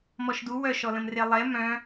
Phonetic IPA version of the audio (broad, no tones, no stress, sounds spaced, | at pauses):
m ɔ ʃ d u w œ ʃ ɔ l ə̃ m r e lˠ ɛ m œ̃